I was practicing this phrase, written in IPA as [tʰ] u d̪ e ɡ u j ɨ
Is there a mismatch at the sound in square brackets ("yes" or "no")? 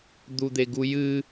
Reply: yes